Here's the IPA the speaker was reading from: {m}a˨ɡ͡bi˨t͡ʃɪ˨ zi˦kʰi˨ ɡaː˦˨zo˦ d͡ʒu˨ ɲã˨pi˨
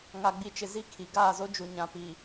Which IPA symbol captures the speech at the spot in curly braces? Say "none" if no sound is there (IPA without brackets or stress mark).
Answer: ŋ